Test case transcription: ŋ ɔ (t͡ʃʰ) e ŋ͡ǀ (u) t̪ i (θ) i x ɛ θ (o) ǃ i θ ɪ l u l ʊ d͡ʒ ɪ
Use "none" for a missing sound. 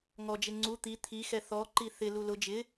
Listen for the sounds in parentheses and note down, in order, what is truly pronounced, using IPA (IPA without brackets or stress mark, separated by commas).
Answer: d͡ʒ, u, t̪ʰ, ɔ